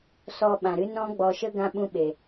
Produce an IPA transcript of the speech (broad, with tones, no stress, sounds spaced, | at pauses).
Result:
s ɔ˧ ɓ ã˨ ɾ ɨ˦ n ɔ̃˦ ɡ͡b ɔ˧ ʃ ə˦ ɡ ã˦ ɓ ũ˦ ɓ e˨